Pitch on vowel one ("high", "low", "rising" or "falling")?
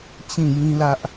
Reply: falling